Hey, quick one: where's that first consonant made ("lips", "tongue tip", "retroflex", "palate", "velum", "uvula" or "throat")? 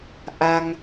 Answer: throat